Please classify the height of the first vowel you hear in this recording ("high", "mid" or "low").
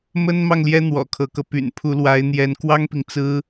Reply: mid